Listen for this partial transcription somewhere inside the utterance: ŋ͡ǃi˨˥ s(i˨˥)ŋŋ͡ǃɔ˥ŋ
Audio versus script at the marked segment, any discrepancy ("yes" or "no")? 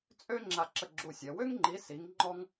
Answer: no